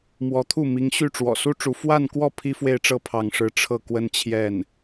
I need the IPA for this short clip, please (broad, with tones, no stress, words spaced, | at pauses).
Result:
mwɔ˧˥t̪ʰu˥˩ mi˧˥ŋɕy˥˩ ʈ͡ʂwɔ̰˨˩su˥ ʈ͡ʂu˧˥ fwa˥˧nkwɔ˥˩ pʰi˥fwe˥˧ɪ̯ʈ͡ʂɤ˥˧ pʰɑ˥˧ŋʂɻ̩˥˧ ʈ͡ʂʰɤ˥˩kwə˥nt͡ɕʰjɛ˥˩n